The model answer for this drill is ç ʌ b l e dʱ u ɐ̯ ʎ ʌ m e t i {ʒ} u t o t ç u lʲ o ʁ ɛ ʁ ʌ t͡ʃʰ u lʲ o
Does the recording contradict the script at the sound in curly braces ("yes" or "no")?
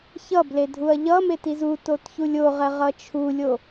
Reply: yes